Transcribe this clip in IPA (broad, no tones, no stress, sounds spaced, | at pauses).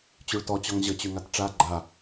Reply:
t͡ɕ y ɭ t ɔ t͡ɕ ɔ ŋ ʑ ə t͡ɕ y ŋ a t ʈ͡ʂ a ɡ͡ǃ a